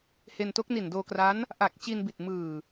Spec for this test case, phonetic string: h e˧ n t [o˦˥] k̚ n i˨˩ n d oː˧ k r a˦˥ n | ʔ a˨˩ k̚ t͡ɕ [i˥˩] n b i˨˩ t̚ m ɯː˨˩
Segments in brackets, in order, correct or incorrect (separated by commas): correct, incorrect